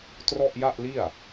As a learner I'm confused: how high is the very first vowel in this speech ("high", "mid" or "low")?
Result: mid